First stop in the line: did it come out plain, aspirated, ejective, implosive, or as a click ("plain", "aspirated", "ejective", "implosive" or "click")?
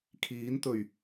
aspirated